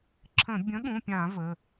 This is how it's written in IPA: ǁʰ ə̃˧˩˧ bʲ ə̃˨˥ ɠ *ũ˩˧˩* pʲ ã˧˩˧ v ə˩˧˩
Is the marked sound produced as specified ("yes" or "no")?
yes